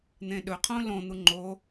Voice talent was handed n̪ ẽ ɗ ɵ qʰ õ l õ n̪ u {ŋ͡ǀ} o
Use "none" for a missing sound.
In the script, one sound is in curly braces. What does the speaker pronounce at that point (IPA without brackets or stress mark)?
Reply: ŋ͡ǃ